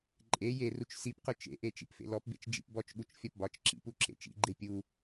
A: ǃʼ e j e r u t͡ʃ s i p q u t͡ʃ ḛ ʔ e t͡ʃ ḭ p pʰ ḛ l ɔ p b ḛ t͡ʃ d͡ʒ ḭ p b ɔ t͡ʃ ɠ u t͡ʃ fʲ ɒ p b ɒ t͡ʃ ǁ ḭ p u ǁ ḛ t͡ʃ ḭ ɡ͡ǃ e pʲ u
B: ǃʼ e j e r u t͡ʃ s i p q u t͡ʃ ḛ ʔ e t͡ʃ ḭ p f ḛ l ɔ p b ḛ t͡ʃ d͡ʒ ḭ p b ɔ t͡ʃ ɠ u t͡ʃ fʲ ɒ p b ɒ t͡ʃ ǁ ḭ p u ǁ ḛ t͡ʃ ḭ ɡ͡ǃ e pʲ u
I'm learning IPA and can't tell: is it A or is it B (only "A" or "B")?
B